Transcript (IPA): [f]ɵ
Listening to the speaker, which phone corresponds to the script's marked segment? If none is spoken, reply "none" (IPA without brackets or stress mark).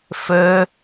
f